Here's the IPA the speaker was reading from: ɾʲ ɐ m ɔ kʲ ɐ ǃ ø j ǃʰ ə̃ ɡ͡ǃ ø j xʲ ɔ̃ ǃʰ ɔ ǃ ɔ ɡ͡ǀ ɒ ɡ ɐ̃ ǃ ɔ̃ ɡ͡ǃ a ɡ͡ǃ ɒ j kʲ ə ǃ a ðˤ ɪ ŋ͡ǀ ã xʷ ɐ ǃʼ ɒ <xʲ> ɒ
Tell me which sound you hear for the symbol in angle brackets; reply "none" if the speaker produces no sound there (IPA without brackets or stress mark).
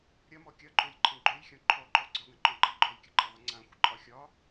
xʲ